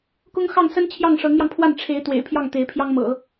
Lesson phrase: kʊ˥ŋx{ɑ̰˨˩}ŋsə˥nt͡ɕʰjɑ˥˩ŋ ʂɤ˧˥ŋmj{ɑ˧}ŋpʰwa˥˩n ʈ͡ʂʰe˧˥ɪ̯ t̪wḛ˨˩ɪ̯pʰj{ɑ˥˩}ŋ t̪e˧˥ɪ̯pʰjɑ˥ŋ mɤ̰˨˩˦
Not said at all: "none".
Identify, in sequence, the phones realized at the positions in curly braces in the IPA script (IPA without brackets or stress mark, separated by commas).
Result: ɑ˥˩, ɑ˧, ɑ˥˩